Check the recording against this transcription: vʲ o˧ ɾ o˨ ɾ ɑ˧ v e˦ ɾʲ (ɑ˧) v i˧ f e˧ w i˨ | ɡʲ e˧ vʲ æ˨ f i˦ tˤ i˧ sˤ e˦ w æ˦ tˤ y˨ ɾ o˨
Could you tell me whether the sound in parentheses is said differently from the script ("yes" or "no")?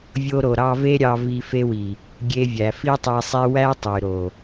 no